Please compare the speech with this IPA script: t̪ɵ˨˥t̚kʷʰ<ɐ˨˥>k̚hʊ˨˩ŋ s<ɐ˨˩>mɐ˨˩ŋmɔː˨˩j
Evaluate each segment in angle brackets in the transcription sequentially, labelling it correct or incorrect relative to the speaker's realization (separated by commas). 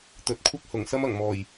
incorrect, incorrect